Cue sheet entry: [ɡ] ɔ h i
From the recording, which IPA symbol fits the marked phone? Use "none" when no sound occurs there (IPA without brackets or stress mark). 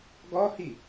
ɡ